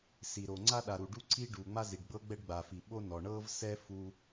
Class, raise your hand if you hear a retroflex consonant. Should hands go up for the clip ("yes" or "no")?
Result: yes